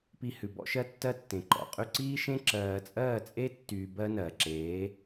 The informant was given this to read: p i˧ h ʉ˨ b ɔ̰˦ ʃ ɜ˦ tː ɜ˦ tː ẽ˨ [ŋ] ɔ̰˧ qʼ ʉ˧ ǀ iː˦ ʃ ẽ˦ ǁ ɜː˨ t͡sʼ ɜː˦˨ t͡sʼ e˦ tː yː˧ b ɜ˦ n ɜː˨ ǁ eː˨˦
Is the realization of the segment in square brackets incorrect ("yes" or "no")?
yes